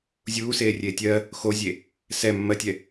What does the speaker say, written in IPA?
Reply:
zʲuːseːrʲeː tʲɜ | xozʲe | sɛ mːɜtʲɛ

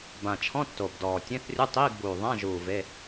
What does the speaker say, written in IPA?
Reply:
bã˨˩t͡ʃʰɔ̃˧˥˧ tːo˨˩bdɔː˨˩ tʲẽ˧˥˧θrʲu˧˥˧tˤiː˧˥˧ɡbuː˨˩ ðˤã˧˥˧ʒuː˨˩ ve˧˥˧

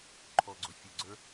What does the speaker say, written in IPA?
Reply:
ǃʰɔɡ͡ǀʊfʲʊɡ͡ǀə˞

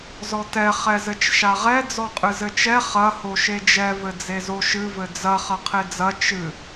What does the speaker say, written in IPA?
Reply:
zɔtɛ χɛzɘt͡ʃʃaʁɛ d͡zɔqʼɨzɘt͡ʃɛ χɐ hoʃed͡ʒɛ vɘd͡zezoʃɨ vɘd͡zɐ χɐqʰed͡zɐ t͡ʃɨ

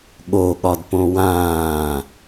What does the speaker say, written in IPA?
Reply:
ɠoɠɒdpõ wãː

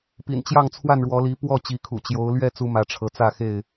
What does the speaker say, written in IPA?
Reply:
pḭ˨˩n t͡ɕjɑ˥˨ŋt͡sʰwa˥˨nɻwɔ˨˦li˨˦ pwɔ˥˨ t͡ɕi˨˦kʰṵ˨˩ t͡ɕjo˨˦ʊ̯ lɥɛ˥˨ t͡su˦mä˨˦ʈ͡ʂʰɤ˨˦ t͡sä˥˨xe˥˨ɪ̯

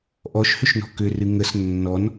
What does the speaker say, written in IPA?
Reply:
ʔɔʃhʏʃnɔ̤ kʏrɨ ŋəs nːɔn

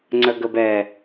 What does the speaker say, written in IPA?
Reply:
ŋ͡ǀəɡəbɛ

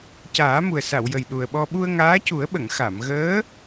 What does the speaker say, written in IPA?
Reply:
caː˨˩˦mu˨˩ə̯sa˨˩˨w jə˨˩jɗu˨˩ə̯ɓɔ˧ ɓu˧ə̯ŋaː˧˥cu˨˩˦ə̯ɓə˨˩˨ŋ xa˨˩˨mɣəː˧˥

